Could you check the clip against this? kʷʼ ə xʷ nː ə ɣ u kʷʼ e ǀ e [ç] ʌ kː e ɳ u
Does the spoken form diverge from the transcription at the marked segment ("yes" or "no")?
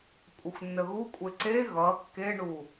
yes